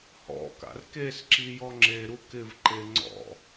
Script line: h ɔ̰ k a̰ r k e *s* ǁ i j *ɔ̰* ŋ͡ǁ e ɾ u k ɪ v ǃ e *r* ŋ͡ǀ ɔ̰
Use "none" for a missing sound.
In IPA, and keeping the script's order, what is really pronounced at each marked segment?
s, ɔ, none

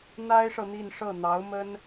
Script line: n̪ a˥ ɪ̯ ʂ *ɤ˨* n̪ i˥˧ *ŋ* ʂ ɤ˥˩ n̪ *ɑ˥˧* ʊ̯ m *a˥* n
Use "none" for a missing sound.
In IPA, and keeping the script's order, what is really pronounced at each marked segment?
ɤ˨, n, ɑ˧˥, ə˥

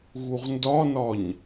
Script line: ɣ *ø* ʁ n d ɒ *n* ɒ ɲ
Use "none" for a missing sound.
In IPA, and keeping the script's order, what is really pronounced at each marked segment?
u, n

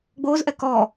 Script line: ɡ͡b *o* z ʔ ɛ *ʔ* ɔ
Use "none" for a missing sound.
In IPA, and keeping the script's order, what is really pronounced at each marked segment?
oː, k

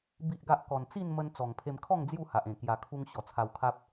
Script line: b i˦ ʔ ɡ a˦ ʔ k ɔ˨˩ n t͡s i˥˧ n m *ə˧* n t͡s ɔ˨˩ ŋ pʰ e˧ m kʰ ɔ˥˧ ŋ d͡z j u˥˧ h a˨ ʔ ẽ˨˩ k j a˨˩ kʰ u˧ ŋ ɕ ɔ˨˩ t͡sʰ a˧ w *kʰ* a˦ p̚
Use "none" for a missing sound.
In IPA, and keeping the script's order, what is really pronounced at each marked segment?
ə˧, kʰ

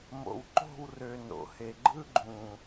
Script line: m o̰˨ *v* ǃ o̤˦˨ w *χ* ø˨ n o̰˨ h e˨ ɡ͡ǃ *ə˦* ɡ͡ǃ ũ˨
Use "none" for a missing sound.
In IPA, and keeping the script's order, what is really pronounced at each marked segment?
w, r, ɯ˦

